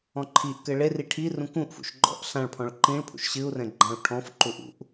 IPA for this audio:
ɔ̃ ǃʰ i ʔ k ɘ ɭ e r i ʈʰ i r ũ k ũ ʔ f ṵ ʃ ɡ͡ǃ ɔ̰ ʔ ɬ ã ɭ pʰ ɔ̃ ɭ ǃ ĩ ɭ pʰ ṵ ʃ ɕ ɨ u̯ r ɛ̃ ɡ͡ǃ ã u̯ ʈʰ ɔ̃ f ǃ u ʔ ṵ ʔ

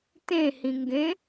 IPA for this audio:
t ẽ h ĩ ŋ ɡ ẽ

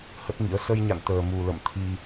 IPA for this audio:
h ə˦˥ t̚ ŋ ḭ˧˥ ə̯ s ə˧ j ɲ a̰˧˨ n t̪ əː˨˩ m u˨˩ l ə̰˧˨ m t̪ʰ i˧

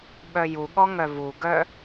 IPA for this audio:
ɓ œ j u ɠ ɔ ŋ œ v u ɡ œ

